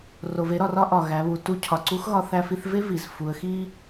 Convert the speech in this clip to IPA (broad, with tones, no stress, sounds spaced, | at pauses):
r o˩ v e˧˥ ɾ ɒ˩ r ɒ˥ ʔ ɒ˩ ɣ æ˩˧ β u˩ t u˧˥ cʰ ɒ˩ ǀ u˧˥ x ɣ ɒ˧ θ æ˧ f i˧ θ v e˥ v i˩ z f u˩˧ ə̯ x i˥